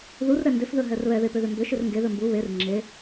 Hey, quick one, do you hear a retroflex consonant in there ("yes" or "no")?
no